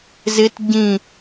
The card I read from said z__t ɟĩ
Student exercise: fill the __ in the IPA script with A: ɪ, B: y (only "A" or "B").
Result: A